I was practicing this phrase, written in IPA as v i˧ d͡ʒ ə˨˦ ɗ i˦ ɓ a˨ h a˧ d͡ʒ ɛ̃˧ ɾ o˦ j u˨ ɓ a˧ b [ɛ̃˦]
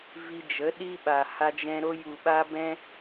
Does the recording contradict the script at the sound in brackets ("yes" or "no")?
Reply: yes